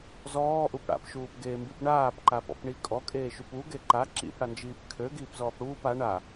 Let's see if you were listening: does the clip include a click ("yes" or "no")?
yes